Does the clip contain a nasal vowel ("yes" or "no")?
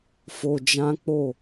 yes